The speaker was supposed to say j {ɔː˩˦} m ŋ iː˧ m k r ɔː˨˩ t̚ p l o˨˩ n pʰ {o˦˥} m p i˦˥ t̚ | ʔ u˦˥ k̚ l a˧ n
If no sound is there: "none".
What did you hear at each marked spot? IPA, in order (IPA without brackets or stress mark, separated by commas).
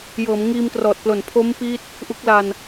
ɤː˩˦, o˦˥